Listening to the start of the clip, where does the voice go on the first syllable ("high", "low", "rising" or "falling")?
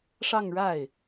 falling